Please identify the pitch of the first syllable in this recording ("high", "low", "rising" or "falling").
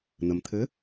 low